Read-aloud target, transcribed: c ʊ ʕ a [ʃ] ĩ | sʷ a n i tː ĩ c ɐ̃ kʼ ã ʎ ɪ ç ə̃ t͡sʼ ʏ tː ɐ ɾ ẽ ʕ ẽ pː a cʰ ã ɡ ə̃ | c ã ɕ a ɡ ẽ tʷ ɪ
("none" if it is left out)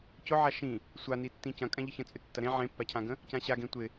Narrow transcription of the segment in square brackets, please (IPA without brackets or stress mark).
ʃ